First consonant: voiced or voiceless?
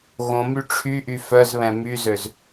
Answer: voiced